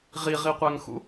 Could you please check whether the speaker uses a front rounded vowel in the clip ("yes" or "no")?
no